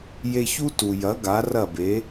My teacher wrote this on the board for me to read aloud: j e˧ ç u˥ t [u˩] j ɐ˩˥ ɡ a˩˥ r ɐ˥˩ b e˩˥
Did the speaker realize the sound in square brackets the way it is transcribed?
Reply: yes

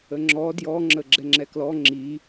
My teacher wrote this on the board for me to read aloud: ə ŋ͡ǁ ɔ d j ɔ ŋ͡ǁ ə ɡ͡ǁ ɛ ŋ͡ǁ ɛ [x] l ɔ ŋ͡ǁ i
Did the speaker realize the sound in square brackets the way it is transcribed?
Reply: no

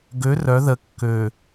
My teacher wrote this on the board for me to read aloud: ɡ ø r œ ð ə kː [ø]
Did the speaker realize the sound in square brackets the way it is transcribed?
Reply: yes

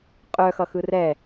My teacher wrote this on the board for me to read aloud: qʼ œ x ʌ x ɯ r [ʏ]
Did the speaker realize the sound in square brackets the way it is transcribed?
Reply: no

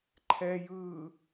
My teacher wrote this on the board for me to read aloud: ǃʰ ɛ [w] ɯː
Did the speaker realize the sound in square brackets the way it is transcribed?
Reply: no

